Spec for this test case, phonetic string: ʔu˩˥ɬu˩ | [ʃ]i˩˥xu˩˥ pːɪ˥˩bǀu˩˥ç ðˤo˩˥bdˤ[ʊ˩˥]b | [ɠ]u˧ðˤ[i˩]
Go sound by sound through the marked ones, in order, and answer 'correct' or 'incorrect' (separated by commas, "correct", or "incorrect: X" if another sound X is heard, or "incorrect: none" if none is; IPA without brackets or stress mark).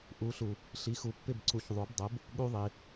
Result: incorrect: ɬ, correct, correct, correct